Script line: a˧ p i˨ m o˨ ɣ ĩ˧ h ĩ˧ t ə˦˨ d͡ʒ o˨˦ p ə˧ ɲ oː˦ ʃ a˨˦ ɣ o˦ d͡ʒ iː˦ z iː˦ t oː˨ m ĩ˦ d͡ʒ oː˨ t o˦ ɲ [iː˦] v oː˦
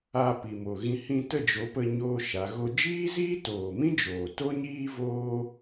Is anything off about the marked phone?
no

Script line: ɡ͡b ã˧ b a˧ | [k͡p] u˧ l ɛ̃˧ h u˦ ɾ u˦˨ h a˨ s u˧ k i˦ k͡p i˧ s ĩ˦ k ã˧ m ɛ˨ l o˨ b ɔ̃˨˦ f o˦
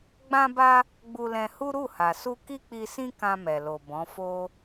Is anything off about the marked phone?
yes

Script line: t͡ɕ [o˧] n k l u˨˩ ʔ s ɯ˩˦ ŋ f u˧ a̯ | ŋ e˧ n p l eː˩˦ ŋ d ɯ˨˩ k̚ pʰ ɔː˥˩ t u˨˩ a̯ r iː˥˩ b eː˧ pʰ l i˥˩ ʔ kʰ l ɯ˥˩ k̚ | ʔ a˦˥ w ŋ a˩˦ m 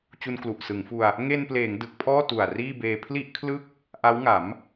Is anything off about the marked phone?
yes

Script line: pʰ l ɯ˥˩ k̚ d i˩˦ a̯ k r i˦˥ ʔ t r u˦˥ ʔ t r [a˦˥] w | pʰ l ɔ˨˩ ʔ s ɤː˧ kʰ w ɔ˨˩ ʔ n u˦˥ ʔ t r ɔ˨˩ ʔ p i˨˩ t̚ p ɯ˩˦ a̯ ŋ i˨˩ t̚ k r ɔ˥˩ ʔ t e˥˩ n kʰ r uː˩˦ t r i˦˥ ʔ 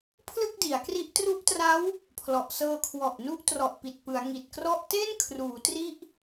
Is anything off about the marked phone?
no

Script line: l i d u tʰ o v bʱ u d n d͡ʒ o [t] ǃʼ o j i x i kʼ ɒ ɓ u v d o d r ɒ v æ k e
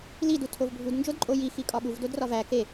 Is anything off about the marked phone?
yes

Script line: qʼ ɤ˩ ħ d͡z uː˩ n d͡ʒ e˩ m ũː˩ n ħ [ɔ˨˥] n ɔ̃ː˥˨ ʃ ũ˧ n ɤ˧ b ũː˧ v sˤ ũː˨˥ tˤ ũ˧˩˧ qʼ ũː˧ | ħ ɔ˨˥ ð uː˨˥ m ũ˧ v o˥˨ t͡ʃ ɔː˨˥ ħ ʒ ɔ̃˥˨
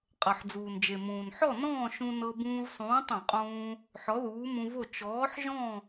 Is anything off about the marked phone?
yes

